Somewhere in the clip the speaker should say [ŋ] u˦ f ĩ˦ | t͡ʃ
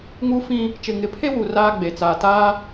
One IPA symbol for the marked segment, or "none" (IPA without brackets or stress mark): ŋ